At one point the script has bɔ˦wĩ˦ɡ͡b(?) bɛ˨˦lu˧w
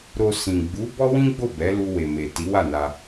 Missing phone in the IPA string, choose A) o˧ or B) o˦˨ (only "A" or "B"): B